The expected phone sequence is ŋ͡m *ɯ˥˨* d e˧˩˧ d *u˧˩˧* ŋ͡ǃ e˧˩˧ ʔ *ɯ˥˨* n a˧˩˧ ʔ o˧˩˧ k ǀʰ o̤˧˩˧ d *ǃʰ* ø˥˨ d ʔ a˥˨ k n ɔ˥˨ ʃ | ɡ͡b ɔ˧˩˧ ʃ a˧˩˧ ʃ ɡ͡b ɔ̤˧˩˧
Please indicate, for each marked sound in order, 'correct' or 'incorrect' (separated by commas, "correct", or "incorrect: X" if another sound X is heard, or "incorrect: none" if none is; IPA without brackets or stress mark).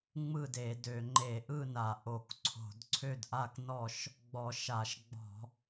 correct, incorrect: ø˧˩˧, correct, incorrect: ǀʰ